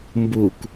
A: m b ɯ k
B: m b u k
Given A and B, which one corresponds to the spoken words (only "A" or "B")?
B